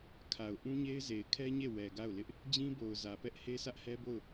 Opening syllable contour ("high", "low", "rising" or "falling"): low